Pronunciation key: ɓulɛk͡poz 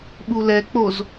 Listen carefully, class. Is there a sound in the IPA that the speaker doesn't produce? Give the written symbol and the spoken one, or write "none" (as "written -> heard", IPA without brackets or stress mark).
none